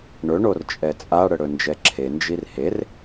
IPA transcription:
ɳ ɵ ɳ o r t͡ʃʼ ɛ t͡sʼ a ɽ ə ɽ ɵ n d͡ʒ ɛ ǁʰ e n d͡ʒ i r h e r

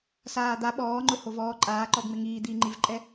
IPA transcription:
s aː d̪ a ɓ ɔː ŋ͡ǃ ʊ h o v ɔː ǃʼ aː ǃ ɔ b ŋ͡m ɪ ŋ iː d̪ iː ŋ͡ǃ i v ǃʼ ɛ

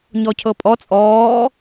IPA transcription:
ɲ ɔ cʰ ɤ pʼ ɔ t͡sʼ ɔː

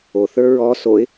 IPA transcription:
o θ ə˞ ɹ ɔ s o ɪ̯

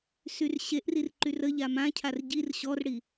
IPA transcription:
s y r ɕ e ʔ r i r ǃ y r ə ʎ a m ã cʰ a r ɟ i r ɕ ɔ r ɽ i

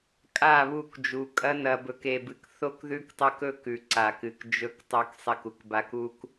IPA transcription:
kʼ a˦˨ β u˦˨ k d͡ʒ u˨ kʼ ɐ˦ n ɐ˨ b ɵ˨ k e˨ b ɨ˨ k θ o˦ k ð ʉ˦ k tˤ ɵ˦ k ɵ˦ k ʉ˨ ǀ a˨ k ɨ˨ k d͡ʒ ɵ˦˨ k tˤ o˦ k sˤ i˨ k u˨ k b a˦ k u˦ k

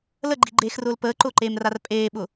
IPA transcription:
l ə ɡ͡ǃ i ɡ͡ǃ eː x r ʊː l p əː ǃ ʊː ǃ eː m r a r pʼ eː ɓ ʊ

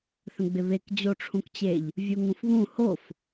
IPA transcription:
θ ə̃ ɡ͡b ɪ β e k d͡ʑ o ʈ͡ʂʰ ũ k t͡ɕ e ʎ | vʲ u ŋ ũ f β ũ h o f

